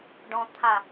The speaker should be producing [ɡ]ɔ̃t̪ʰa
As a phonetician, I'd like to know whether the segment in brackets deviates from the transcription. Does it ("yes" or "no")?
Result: yes